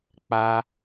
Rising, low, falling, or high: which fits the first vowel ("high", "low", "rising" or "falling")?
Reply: high